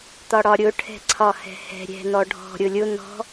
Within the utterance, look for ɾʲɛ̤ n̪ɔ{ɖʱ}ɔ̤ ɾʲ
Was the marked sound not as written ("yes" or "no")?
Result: no